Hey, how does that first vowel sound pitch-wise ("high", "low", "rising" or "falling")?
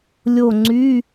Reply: falling